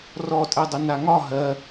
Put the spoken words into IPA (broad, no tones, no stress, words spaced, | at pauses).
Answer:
rɔtʼɛdˤə naŋɒ ɦɜ